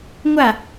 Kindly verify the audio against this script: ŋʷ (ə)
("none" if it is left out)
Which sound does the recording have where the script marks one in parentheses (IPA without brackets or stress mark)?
a